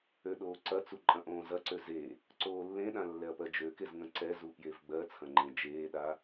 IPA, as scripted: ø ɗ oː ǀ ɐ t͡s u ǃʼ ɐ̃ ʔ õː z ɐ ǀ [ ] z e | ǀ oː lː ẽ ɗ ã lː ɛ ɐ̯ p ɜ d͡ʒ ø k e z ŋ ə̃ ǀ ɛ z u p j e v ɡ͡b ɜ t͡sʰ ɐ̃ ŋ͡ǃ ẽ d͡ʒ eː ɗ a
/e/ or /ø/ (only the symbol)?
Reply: ø